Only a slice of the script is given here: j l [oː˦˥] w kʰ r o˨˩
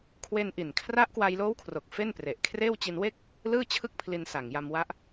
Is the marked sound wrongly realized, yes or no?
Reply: no